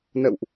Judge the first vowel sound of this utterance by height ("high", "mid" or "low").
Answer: mid